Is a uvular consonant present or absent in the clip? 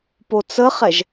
present